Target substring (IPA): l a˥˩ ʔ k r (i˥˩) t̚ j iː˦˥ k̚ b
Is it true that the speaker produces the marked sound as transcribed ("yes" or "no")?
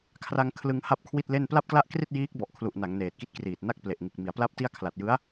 yes